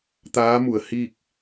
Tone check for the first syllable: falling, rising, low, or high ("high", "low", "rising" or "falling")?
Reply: rising